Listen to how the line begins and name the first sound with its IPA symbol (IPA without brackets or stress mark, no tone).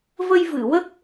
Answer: v